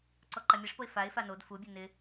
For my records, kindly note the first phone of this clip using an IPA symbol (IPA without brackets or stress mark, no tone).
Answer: ǀ